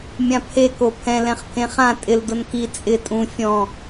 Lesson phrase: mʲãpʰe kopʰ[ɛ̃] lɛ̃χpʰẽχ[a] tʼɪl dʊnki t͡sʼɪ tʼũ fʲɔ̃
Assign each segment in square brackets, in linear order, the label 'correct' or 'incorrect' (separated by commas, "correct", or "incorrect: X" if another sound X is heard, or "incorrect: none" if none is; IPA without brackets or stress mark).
correct, incorrect: ã